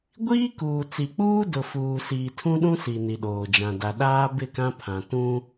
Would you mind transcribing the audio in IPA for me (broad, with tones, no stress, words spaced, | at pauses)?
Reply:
ɡʷiː˦kuː˨ t͡si˨k͡puː˦ dʊ˨fuː˨siː˨ tʰũ˦ɗũ˦ si˨ ni˨ɗoː˨d͡ʒã˨ da˨ɗaː˦ bɪ˦˨kã˦pʰã˨tũ˦